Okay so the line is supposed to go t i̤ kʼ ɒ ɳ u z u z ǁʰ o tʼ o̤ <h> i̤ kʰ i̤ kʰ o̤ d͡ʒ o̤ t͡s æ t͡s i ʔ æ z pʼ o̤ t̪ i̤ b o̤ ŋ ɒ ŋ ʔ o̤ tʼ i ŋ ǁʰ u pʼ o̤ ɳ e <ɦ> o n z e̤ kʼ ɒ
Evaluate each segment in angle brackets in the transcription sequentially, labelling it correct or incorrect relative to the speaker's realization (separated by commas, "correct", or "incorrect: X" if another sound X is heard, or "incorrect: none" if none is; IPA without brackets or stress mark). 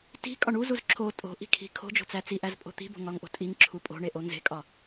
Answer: incorrect: ʔ, incorrect: ʔ